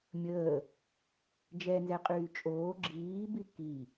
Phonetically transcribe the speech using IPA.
mʲ əː | d͡ʒ ɛ n z ɛ qʼ yː t͡ʃʼ oː ɡ͡ǁ iː b i k i

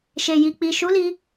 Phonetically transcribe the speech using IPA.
ʃ e˨ j i˨ k͡p i˨ ʃ u˨˦ l i˧

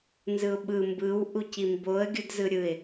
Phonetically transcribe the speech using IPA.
n z ɯ ʊ̯ ɓ ɯ m b ɯ w ʔ u c i m b o ə̯ ɡʲ ɯ d z ɯ ɾʲ ɯ ɪ̯

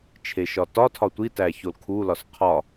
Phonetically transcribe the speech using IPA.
t͡ʃʰ e ʃ ɒ t ɒ tʰ ɒ tʷ i t æ ç o l kʰ u l ɒ s qʰ ɒ

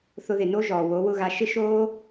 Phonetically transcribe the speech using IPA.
θ ʊ˧ ð ɪ˨ n o˦ ʒ ɔː˨ w o˨˦ w ʊ˦ ɣ a˧ ʃ ɪ˧ ʃ oː˧

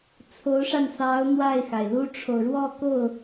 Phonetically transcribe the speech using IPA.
t͡sʰ o˧˥ ʊ̯ ʂ a˧ n s ɑ˧˥ ʊ̯ n̪ w a˥˩ ɪ̯ x a˩ ɪ̯ l u˥ ʈ͡ʂʰ o˨ ʊ̯ ɻ w ɔ˥˧ k o˥˩ ʊ̯

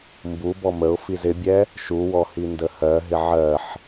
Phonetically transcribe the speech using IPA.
m b u b ɔ m ə ʊ̯ f i z ɪ bʲ ɛ | ʃ u w ɔ h i n d ə h ɜ ɦ ɪ ʕ ɜ ħ

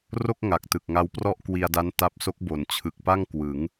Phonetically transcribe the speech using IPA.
r o˥˩ k̚ ŋ a˨˩ k̚ t ɯ˨˩ k̚ ŋ a˦˥ w p r ɔ˥˩ ʔ k w i˧ a̯ d a˦˥ n t a˦˥ p̚ s o˦˥ k̚ b o˩˦ n t͡ɕʰ ɯ˨˩ k̚ p a˥˩ ŋ k w ɯ˩˦ ŋ

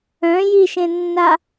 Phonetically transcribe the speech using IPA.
œ̃ j i ʃ ẽ nː a

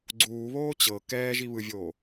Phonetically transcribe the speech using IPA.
ɡ͡ǀ uː β oː t͡ɕ ɤ k ɛː ʒ i β ɯ vʲ oː

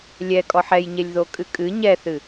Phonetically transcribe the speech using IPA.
lʲ ɛ kʼ ɔ ħ ɛ j ɲ e lʲ ð o kʼ ɨ kʼ ɨ ɲ ɛ θ ɨ

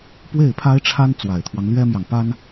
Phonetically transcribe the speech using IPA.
p w e˥˩ ɪ̯ pʰ a˥ ɪ̯ ʈ͡ʂʰ a˥ n t͡s w a˨˩ ɪ̯ t̪ʰ w ɑ˦ ŋ l ɥ ɛ˥ m j ɑ˨ ŋ p a˥ n

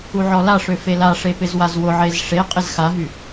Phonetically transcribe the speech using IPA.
u ʕ ɔ l a ʂ ø f e l a ʂ e p ɪ z w a z w ʊ ʕ e z ʂ e qʼ ɪ z x a ɦ y

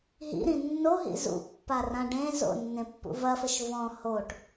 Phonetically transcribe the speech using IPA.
ɦ ḭ ɾ ĩ nː o ɦ ḭ z ṵ pː a r ã ɖ ẽ z o̰ nː ẽ pː ṵ v ɐ f ɘ ʃ v ɔ̃ h o ʈ

